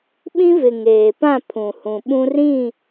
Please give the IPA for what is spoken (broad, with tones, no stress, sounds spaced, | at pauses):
ɓ ĩ˦ v ɪ˨ ŋ eː˨ p ã˦˨ pʰ ũ˨ h ũ˨ ɓ ũ˦ r ĩ˦˨